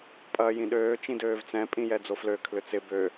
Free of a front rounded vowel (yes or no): no